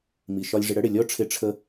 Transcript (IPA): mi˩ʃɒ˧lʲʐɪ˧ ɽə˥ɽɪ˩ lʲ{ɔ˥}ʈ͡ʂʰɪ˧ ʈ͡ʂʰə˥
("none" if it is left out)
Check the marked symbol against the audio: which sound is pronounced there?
ɔ˥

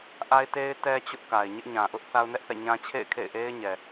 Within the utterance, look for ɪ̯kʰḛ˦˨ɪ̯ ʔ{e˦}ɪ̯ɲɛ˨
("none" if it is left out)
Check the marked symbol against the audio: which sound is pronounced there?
e˦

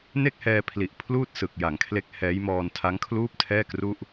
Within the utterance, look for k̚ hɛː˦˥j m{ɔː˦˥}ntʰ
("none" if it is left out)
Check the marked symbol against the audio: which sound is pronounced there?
ɔː˧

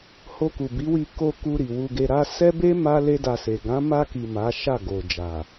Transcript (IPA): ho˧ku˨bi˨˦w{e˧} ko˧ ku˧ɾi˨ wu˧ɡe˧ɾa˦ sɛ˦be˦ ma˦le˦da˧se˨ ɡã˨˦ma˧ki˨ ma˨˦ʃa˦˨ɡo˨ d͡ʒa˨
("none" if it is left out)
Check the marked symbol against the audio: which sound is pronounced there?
i˧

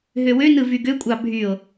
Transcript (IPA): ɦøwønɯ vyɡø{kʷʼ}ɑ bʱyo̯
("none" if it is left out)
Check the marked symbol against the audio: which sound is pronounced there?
kʷʼ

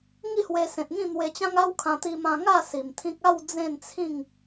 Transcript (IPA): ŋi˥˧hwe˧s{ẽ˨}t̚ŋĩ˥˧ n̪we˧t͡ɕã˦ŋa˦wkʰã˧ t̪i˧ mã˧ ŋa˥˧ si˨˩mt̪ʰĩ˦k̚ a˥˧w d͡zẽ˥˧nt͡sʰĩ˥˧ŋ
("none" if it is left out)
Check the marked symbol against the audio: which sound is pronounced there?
ẽ˨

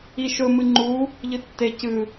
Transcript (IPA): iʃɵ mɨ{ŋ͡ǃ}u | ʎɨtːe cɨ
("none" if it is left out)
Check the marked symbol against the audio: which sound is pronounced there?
ŋ͡ǃ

